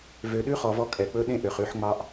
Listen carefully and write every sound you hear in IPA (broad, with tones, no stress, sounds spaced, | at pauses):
v ø˨ ɗ ʉ˦ χ ɔ˨ v ɔ˧ kʼ ɛ˨ k͡p ɵ˦ ɗ ẽ˦ ʔ ø˨ χ ʉ˦˨ ħ ŋ͡m ɑ˦ ʔ